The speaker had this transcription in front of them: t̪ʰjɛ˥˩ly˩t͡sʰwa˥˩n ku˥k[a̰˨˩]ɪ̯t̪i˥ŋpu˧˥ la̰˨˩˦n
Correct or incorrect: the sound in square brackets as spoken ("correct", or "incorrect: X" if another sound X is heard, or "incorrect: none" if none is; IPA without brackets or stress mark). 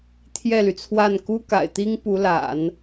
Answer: correct